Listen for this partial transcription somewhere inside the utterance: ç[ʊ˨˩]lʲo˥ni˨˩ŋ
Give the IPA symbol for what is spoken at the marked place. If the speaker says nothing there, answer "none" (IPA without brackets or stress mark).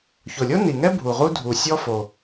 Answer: ʊ˨˩